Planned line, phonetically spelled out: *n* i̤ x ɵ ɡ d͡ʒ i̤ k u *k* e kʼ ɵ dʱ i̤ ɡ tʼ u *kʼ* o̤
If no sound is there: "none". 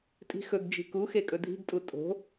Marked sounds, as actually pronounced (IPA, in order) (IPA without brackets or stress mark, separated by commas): tʼ, x, tʼ